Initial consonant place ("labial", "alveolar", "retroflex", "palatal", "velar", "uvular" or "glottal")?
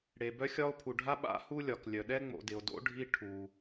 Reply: retroflex